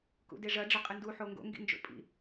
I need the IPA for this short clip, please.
k ṵ d e ʐ ɐ ɖ͡ʐ ɐ qʼ ɨ n d u ħ o ŋ ɡ o̰ ŋ ɡ ḭ n d͡ʒ o̰ pʼ ḭ

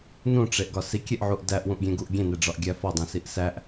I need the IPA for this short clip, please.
n ũ ʈ͡ʂ e ʔ ɡ ɒ s i kʲ e ʔ ʕ u ʔ d æ ʔ w ũ ʔ ɡʲ ẽ ɡ u ʔ ɡʲ ẽ n e ɖ͡ʐ ɒ ʔ ɡʲ æ f ɒ dˤ ĩ s i ʔ s æ ʔ

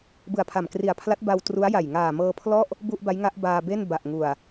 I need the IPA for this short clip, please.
b ɯ˨˩ a̯ pʰ a˨˩ m k r i˨˩ a̯ pʰ l a˦˥ t̚ b a˧ w t r u˦˥ a̯ j a˨˩ j ŋ aː˨˩ m ɤː˧ pʰ l ɔ˥˩ ʔ | b u˥˩ ʔ b a˦˥ j ŋ a˦˥ ʔ b aː˧ b e˥˩ n b a˨˩ ʔ ŋ u˨˩ a̯

